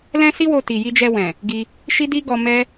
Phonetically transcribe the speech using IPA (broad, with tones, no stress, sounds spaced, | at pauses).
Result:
l ɛ̃˦ s i˦ w o˧ t i˨ j i˧ d͡ʒ ɛ˧ w ɛ̃˨ | ɡ i˧ | ʃ i˦ d i˦ ɡ ɔ˧ m ɛ˦